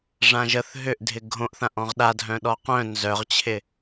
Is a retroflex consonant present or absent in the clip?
present